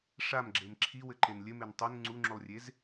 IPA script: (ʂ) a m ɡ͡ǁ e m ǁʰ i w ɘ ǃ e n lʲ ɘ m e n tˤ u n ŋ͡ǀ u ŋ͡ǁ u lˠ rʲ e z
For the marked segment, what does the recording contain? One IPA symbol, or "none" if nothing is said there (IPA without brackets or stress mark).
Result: ʂ